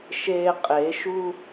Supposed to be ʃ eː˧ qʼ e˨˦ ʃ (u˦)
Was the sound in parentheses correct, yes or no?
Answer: yes